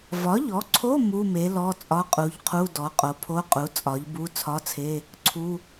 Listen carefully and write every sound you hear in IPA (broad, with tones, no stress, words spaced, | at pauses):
vɒ˩˥ʎɔ˩˥ǀʰo˧˥˧ mu˧˥˧me˩˥ lɔ˧˥˧t͡sʼɒ˧˥˧qʼu˩˥ʎqʰu˧˥˧ dɔ˩˥qʼo˩˥pʰo˧˥˧qʼu˩˥ t͡sʼɒ˩˥ʎbu˧˥˧ t͡sʰɒ˧˥˧t͡sʰe˧˥˧ | ǀʰu˧˥˧